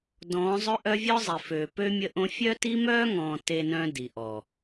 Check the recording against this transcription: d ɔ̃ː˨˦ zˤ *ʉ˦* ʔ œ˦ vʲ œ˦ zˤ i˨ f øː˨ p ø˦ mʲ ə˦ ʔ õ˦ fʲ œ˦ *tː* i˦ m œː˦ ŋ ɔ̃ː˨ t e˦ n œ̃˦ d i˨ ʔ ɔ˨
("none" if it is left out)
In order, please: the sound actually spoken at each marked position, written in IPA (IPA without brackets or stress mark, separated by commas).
ø˦, t